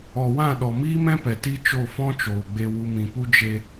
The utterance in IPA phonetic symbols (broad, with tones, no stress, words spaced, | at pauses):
ɔ˨wã˦˨ɗɔ˨ miː˦mɛ̃˦pɛ˨ ti˦t͡ʃo˦˨fɔ̃˦t͡ʃoː˨ ɡ͡be˧wu˧mĩ˨pu˦ d͡ʒe˧